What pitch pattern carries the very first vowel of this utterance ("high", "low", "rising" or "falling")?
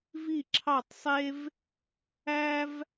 falling